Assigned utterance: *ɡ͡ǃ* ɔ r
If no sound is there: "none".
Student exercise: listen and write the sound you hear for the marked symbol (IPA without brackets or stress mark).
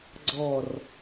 ɡ͡ǀ